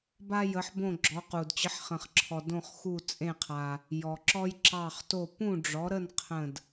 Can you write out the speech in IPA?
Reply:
b a˧ j ə˩˧ ħ b õ˧˩ ɡ͡ǁ ɔ˩˧ q u˩ d t͡ɕ ə˩˥ ħ χ ə̃˩ χ ǁʰ ɔ˩ d õ˧˩ χ x u˧˩ t͡sʼ ẽ˧˩ qʰ a˩ | j ɔ˩ ǁ ɔ˧ j ǁ ɑ˧˩ χ t o˧˩ p ũ˥˨ ɖ͡ʐ ɔ˩˥ ɾ ə˥˨ n qʰ ə̃˧˩ d

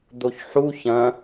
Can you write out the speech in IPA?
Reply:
d̪ o ç ħ u ç ɐ̃

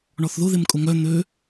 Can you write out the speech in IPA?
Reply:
ɳ ɔ θ ð ʊ ð ɪ m kʼ ʊ ŋ œ n̪ ø

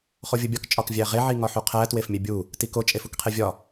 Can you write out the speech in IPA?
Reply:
χ o vʲ u bʲ ɒ k t͡ʃʼ ɒ k vʲ æ ʁ e ʕ i ŋ ɒ ħ u qʰ æ t w e f mʲ e bʲ u | t i k o t͡ʃʼ e f u k qʰ e vʲ ɒ

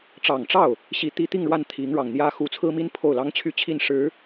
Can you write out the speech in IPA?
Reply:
ʈ͡ʂ ɑ˨˩ ŋ ʈ͡ʂ ɑ˥˩ ʊ̯ | ɕ i˧˥ t̪ i˧˥ t̪ i˥˧ ŋ ɻ w a˥˩ n t̪ʰ i˧˥ ŋ ɻ ɑ˨˩ ŋ n̪ j ä˥ x u˧˥ t͡sʰ ɹ̩˥ m i˥ n pʰ o˥˩ ʊ̯ l ɑ˥ ŋ t͡ɕʰ y˥ t͡ɕʰ i˥˩ n ʂ ɻ̩˧˥

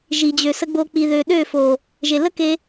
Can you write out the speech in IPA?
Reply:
ʒ i˨ d͡ʑ ø˨ s ə˧ ɡ͡b o˧ k͡p i˨ ð ø˨ ɗ ø˦˨ f o˨ | ʒ e˨ l ə˦ k e˧

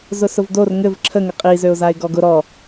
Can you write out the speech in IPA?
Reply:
z ʊ s ʊ v d o r ŋ ɘ v ǁʰ ə ŋ ɘ qʼ i z ø ʊ̯ z a ɪ̯ ɡ ɔ ɡ ʊ ɾ ɔ

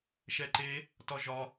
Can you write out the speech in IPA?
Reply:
ʃ ɛ ǃ e | t ɒ ʒ ɒ

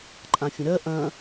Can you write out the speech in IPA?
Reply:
ǃʼ ã fʲ ə̃ ɾ ɜ ʔ ɐ̃

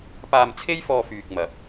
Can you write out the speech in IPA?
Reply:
p aː˧ m t͡sʰ e˥ j f ɔː˧ f yː˧ k̚ m ɐ˨˥ p̚

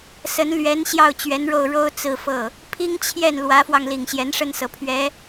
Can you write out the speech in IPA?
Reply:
s ə˧˥ n l ɥ ɛ˧˥ n ɕ j ɑ˥˩ ʊ̯ t͡ɕ ɥ ɛ˧˥ n ɻ o˥˩ ʊ̯ ɻ o˥ ʊ̯ t͡s ɹ̩˥˧ f ɤ˥˩ | pʰ i˥ ŋ t͡ɕʰ j ɛ˥˩ n l w ä˧˥ f w ɑ˧ ŋ l i˨˩ ŋ ɕ j ɛ˧˥ n ʂ ə˥˩ n s ɤ˨˩ pʰ ɥ ɛ˧˥

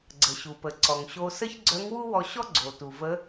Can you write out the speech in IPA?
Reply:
ɡ͡ǀ ə˩ ɕ u˩ p ə˩ ǀ ɔ˩ ŋ ɕ o˧ s ə˥ ç ɡ͡ǀ œ˧˥ ŋ w u˥ w ɔ˧ ɕ ɔ˥ ɡ͡ǀ o˩ t u˩ v ə˧˥

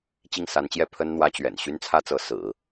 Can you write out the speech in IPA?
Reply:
t͡ɕ i˥˩ ŋ s a˧˥ n t͡ɕ j ɛ˥˩ pʰ ə˥ n n̪ w ä˥ t͡ɕ ɥ ɛ̰˨˩ n ɕ y˥ n t͡sʰ ä˥ t͡s ɤ˧˥ s ɹ̩˨˩˦

